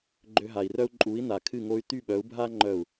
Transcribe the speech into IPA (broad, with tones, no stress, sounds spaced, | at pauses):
ɡ͡ǃ ø˧ ɦ a˨ i̯ r œ˦ u̯ ǃʼ u˨˦ i̯ n a˨ kʰ ɨ˦˨ ŋ o˧ y̯ t y˦˨ ɓ œ˨˦ u̯ bʱ a˦ ŋ͡ǃ œ˦˨ u̯